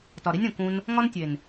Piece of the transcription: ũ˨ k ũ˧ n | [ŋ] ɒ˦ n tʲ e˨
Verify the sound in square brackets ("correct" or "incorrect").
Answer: correct